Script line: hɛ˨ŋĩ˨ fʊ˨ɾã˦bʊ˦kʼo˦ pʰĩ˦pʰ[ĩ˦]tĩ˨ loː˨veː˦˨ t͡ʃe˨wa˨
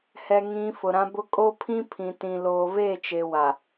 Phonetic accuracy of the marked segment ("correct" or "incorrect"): incorrect